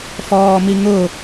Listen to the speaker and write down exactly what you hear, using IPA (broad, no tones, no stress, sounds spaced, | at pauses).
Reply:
f ɔː m i ŋ ʊ